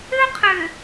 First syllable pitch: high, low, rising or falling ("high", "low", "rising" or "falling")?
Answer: high